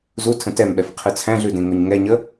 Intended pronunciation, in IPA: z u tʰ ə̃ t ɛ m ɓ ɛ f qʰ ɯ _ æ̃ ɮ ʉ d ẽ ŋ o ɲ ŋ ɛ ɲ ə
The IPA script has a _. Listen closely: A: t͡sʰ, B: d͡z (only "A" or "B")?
A